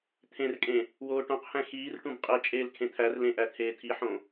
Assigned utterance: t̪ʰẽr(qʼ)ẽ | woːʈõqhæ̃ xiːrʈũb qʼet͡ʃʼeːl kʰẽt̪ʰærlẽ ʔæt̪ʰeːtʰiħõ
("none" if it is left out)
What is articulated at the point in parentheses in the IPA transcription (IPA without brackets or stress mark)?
kʼ